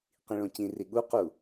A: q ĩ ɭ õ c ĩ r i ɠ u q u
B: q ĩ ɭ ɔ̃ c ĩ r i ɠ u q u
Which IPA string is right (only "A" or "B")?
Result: A